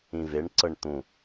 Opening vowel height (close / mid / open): close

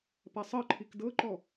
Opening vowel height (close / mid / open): open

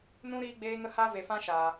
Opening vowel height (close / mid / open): close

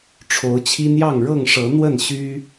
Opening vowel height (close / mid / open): mid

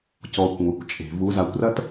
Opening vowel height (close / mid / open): mid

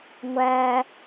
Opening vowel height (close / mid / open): open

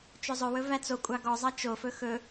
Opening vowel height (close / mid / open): mid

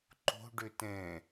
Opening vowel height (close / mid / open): mid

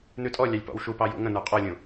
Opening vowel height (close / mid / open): close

